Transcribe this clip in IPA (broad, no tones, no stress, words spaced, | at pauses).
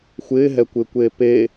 xʷɪːɦɛkʷɪːkʷeː peː